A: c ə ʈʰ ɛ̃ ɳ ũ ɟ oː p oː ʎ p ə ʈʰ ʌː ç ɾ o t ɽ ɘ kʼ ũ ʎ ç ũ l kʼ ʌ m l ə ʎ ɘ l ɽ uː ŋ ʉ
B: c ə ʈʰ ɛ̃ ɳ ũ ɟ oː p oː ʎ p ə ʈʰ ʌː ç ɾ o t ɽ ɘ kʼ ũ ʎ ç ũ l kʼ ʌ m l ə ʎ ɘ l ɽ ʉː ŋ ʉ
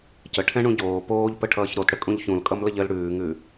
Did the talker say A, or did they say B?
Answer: B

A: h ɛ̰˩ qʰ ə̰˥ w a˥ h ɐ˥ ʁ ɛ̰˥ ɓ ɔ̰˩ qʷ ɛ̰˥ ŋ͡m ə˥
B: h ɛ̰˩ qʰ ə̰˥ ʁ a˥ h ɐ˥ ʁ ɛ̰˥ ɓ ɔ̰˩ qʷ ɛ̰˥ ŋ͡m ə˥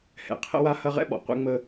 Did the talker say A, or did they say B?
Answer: A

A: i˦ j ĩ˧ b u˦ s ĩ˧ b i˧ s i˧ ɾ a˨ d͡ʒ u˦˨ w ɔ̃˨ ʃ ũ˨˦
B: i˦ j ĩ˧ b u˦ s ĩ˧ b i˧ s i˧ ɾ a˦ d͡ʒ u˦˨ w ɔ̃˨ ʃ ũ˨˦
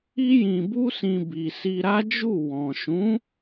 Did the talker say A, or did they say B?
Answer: B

